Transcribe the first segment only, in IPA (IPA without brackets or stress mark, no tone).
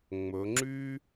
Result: ŋ͡m